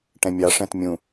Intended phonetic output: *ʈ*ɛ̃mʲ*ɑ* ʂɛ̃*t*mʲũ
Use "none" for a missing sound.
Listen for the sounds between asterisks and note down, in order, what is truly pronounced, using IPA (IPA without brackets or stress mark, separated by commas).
ʈ, ɑ, t